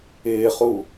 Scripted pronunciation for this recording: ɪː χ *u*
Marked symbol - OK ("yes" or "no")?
yes